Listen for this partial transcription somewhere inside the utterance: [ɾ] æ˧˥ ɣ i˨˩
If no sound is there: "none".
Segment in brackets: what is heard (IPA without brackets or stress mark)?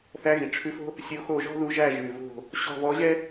θ